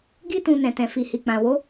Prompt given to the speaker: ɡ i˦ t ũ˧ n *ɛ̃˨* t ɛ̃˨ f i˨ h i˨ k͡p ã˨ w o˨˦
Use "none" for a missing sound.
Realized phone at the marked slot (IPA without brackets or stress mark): ɛ̃˨